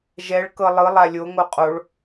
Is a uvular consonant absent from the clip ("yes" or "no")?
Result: no